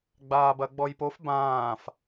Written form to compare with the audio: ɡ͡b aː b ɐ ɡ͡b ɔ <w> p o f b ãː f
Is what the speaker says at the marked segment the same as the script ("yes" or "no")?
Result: no